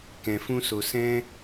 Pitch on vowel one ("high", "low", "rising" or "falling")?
low